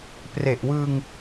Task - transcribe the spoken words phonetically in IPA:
p r e˨˩ ʔ w ɯː˧ ŋ

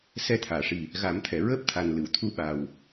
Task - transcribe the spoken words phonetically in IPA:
s ɛ˧˥ t̪ʰ aː˨˩˨ ʂ i˨˩ | ɣ a˨˩˦ m t̪ʰ ɛ˨˩˨ ɹ əː˦˥ p̚ t̪ʰ a˨˩ n l ɨ˨˩˨ w t̪ʰ u˧˥ ɓ a˨˩ w

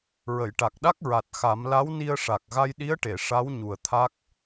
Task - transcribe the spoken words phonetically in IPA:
ɹ ə˨˩˨ j ʈ a˨˩ k̚ ɗ a˦˥ k̚ ɹ a˨˩ t̚ x a˨˩˦ m l a˧˥ w n i˧ ə̯ ʂ a˨˩ k̚ ɣ a˧ j ɗ i˧˥ ə̯ ʈ e˨˩˨ ʂ a˧˥ w ɲ u˨˩ ə̯ t̪ʰ a˦˥ k̚

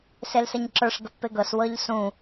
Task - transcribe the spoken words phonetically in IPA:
s e l s ə ɲ ǁ ə˞ ʂ ɡ ə pː e ɡ ɤ s w ɤ ʎ s ũ

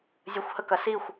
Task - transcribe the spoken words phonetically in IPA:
zʲ ə xʷ h ə k ɐ s i xʷ

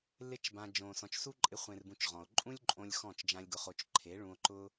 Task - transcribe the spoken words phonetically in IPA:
l ɪ˦ t͡ʃ b ã˧ d͡ʒ õ˨ s ɔ̃˨ t͡ʃ s u˦ ǃʼ ɪ˧ χʷ ẽ˨ r b ũ˨ t͡ʃ ʁ ɔ̃˨ o̯ ǃʼ ũ˦ lʲ ǃʼ õ˧ lʲ x ɔ̃˦˨ t͡ʃ d͡ʒ ã˦ lʲ ɡ ʊ˧ χ o˧ t͡ʃ ǃʰ e˨˦ ɭ ũ˧ o̯ ǃ ʊ˦

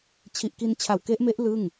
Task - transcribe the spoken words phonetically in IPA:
t͡ɕʰ i˨˩ ʔ k i˧ n t͡ɕʰ a˨˩ w k e˦˥ ʔ m e˦˥ ʔ l ɯ˥˩ ŋ

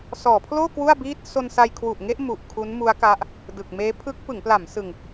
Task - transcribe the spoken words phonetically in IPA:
s ɔː˩˦ pʰ l oː˥˩ k w u˥˩ a̯ b iː˥˩ t̚ s o˧ n s a˧ j kʰ w u˨˩ ʔ ŋ e˥˩ ʔ m u˨˩ ʔ kʰ u˦˥ n m u˦˥ a̯ k a˦˥ ʔ | d ɯ˨˩ k̚ m eː˦˥ pʰ ɯ˦˥ k̚ p ɯ˩˦ ŋ p l a˩˦ m s ɯ˧ ŋ

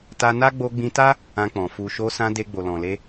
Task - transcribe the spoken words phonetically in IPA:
t a˧ n a˦ ɡ͡b o˧ ɡ͡b ĩ˧ t a˦ | ã˧ k͡p ɔ̃˨ f u˨ ʃ o˧ s ã˧ d e˧ ɡ͡b o˨ l ɔ̃˨ l e˧

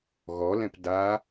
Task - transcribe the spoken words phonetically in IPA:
ɣ ɔ l ɛ̃ p d a

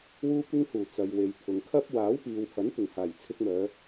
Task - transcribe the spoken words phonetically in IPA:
w uː˧ kʷ ɪ˧ ŋ h uː˨˩ t͡s ɐ˨ j w e˨ j t̪ʰ ʊ˨ ŋ kʰ ɐ˥ p̚ w aː˨˥ w p iː˨ w h ɐ˨˥ n t̪ ɪ˨˩ ŋ h aː˨˩ j t͡sʰ ɪ˧ k̚ m œː˨˧

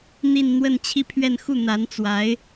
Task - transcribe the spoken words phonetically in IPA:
n̪ i˥˧ n n̪ w ə˥˧ n t͡ɕʰ i˥˧ pʰ ɥ ɛ˥˧ n x u˥˩ n̪ a˧˥ n t͡s w a˧˥ ɪ̯

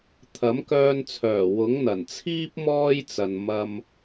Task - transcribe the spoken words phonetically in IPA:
t̪ʰ ɐ˨˥ m k œː˧ n t͡sʰ œː˨˩ w ʊ˨˥ ŋ n̪ ɐ˨˩ n t͡sʰ iː˥ p̚ m ɔː˥ j t͡s ɐ˨ n m ɐ˧ m

